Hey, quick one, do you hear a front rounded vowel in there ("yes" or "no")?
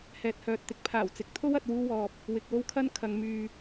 yes